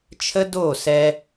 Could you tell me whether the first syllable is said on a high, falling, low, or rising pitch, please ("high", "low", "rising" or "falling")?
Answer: high